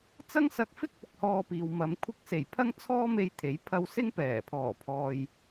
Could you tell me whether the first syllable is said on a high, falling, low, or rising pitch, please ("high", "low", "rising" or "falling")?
high